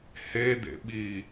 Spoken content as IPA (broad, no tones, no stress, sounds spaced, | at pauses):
h e d ḛ ɓ i